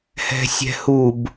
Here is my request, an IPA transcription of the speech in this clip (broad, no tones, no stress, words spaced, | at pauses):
hɛ̤sʲɛ̤hub